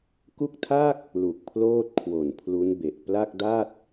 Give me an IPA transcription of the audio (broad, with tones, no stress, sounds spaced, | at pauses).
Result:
k u˥˩ k̚ tʰ a˥˩ k̚ | l u˨˩ k̚ pʰ l oː˥˩ t̚ kʰ w o˨˩ n pʰ l u˦˥ n b e˨˩ ʔ p l a˥˩ k̚ d a˥˩ t̚